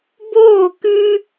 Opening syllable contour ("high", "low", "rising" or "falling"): falling